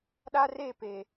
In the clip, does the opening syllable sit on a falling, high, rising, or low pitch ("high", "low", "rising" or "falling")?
high